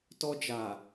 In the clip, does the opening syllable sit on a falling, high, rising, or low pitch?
high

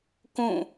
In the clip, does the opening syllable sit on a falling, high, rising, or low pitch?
falling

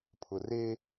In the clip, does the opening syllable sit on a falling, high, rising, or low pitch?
low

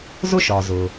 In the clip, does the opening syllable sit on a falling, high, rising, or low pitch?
falling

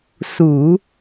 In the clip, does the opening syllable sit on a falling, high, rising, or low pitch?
low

